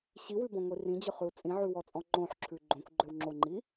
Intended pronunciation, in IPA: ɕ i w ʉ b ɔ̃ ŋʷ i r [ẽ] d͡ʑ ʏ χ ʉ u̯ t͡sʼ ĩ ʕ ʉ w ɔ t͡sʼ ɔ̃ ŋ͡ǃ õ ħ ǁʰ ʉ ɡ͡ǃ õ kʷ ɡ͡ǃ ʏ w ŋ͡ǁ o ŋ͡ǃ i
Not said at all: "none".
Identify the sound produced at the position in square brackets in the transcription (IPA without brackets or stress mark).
ĩ